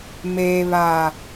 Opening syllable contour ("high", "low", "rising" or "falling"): low